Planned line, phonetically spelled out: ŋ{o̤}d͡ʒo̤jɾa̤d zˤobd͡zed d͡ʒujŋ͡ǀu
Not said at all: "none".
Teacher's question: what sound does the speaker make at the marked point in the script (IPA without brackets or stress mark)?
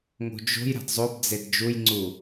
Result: o̤